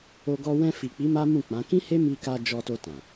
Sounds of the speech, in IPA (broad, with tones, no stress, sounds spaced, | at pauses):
o˧ ɡ ɔ˧ w ɛ̃˧ f i˨ k͡p i˨˦ m a˦ m ũ˦˨ k͡p ã˨˦ k ĩ˦ h e˦ m i˧ k a˧ d͡ʒ ɔ˧ t o˧ t ã˨